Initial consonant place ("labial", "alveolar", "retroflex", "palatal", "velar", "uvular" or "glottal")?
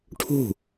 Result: retroflex